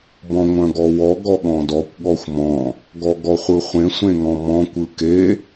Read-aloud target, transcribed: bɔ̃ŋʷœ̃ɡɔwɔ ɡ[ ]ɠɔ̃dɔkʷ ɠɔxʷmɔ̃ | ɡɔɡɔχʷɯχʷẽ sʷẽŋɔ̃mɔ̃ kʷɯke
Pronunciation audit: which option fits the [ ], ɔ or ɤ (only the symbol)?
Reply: ɔ